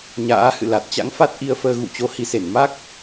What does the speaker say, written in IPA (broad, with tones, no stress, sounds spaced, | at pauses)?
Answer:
ɲ a̰ː˧˥ h ɨ̰˧˨ l a˨˩ t̚ t͡ɕ a̰˧˥ ŋ f a˦˥ t̚ ʔ i˧ ə̯ f əː˧ ɣ ṵ˧˨ t͡ɕ o˨˦ h i˨˦ s e˧˩ n m a˦˥ k̚